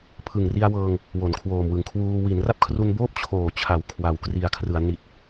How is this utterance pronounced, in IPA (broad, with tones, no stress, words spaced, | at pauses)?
pʰɯ˨˩ŋri˧a̯wɤː˧ŋ | wo˩˦nkʰwoː˨˩mwɯ˨˩ŋkʰwuː˧ wi˩˦nra˥˩p̚kʰru˧nboː˥˩p̚ t͡ɕʰoː˨˩t͡ɕʰa˩˦w kʰwa˩˦w kri˨˩a̯kʰrɯ˩˦a̯ ni˨˩t̚